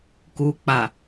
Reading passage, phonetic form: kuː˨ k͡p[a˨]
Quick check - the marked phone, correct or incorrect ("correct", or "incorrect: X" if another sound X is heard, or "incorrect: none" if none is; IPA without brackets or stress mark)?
correct